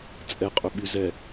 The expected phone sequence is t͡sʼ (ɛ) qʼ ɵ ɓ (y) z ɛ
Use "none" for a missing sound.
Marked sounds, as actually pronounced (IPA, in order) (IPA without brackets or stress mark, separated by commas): ɛ, y